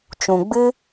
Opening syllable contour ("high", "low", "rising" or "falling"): low